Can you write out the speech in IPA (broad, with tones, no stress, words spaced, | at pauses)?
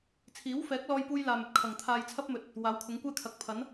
t͡sʰiː˨˥wfɛː˨˥k̚lɔː˧jpuː˧j laː˧mɵ˧t̚ kʰɐ˨˩ŋ t̪ʰaː˧jt͡sʰɐ˥p̚mɵ˨˥t̚ | waː˨˥wkʰʊ˨˥ŋkʷɛː˥ kʰɐ˨˥k̚pʰɐ˨˥n